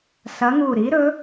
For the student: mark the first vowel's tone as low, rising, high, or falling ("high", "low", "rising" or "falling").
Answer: rising